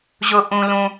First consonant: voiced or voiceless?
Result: voiced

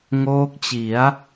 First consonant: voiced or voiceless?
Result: voiced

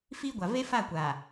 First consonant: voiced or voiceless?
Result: voiceless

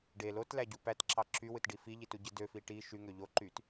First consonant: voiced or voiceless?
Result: voiced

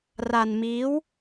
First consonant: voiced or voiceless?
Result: voiced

